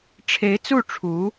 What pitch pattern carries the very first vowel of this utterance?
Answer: rising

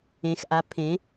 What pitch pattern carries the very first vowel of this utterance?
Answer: rising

